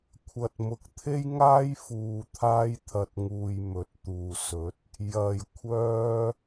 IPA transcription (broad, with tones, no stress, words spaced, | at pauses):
kʷʰɐ˨t̚ mʊ˨k̚t̪ʰe˥jŋaː˥j fuː˨t̪ʰaː˧jt̪ʰɐ˨t̚ŋuː˨j mɵ˨˥t̚t̪uː˨sɵ˨˥t̚ | jɐ˨˩j kʷʰœː˧